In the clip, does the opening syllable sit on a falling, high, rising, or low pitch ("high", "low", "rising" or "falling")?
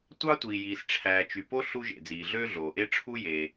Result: high